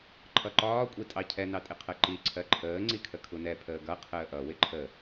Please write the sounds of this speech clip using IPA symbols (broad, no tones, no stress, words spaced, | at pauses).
ǃʰʌǃɒː kʷʼitʼɑcʰɛ nɑtʼɪqʰɜǃi ǀʰɜǃʰəː ŋ͡ǀikʰəkʰunɛ pʰəːɡʌ qʰəːʔʌ wɪǃʰə